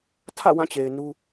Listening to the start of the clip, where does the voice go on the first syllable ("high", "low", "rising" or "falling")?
falling